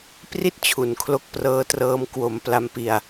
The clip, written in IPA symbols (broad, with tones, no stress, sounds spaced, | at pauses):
p r i˥˩ t̚ t͡ɕʰ u˨˩ n kʰ l o˥˩ k̚ p r ɤː˦˥ t r ɤː˦˥ m k w o˩˦ m p l a˧ m p i˧ a̯